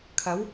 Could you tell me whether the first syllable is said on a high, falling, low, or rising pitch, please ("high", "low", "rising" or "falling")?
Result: rising